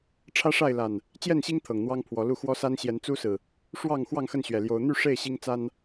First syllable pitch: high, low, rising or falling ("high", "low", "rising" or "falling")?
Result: high